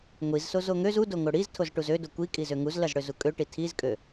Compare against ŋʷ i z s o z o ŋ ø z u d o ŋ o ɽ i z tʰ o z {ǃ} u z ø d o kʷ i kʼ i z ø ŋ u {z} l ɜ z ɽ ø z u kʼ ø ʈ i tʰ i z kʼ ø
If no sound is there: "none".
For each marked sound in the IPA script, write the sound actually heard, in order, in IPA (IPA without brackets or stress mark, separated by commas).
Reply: ʈ, z